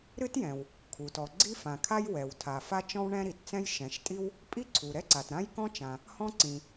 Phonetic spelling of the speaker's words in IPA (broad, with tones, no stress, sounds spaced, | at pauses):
ɾ ɨ˥ t j ɛ̃˩ w | kʰ u˩ t ɔ˩ ɡ͡ǀ i˥ f ã˩ kʰ a˥ j w ɛ˩ w tʰ a˩ f a˥ t͡ʃ ɔ̃˥ w ɳ ɛ̃˥ ɾ i˩ t t͡s ɛ̃˥ j ʃ ɛ̃˩ ʃ tʼ i˥ w | pʼ i˥ ǀʰ u˩ ɾ ɛ˥ ǀ a˩ t ɾ ã˥ j k ɔ̃˥ t͡ʃ ã˩ | h ɔ̃˥ ǀ ĩ˩